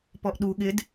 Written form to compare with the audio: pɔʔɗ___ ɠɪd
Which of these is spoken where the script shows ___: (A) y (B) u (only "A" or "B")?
B